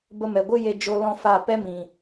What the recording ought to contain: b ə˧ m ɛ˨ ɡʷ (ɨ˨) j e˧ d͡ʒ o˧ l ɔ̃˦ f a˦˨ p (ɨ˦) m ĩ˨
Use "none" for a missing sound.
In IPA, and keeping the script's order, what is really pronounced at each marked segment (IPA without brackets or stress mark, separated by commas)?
ɨ˦, ɛ˦